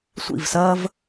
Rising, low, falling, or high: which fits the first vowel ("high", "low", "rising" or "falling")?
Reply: falling